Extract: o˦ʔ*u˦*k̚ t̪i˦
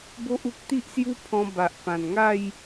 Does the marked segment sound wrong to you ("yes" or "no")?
no